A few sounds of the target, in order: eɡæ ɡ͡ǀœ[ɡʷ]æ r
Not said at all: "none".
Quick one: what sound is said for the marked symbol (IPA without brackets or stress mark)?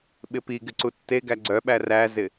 ɓ